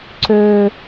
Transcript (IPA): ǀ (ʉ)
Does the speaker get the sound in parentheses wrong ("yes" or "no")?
yes